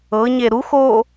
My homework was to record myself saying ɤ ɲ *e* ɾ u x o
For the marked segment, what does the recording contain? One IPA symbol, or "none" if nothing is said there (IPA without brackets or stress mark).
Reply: e